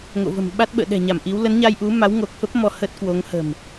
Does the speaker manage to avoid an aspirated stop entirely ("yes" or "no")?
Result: yes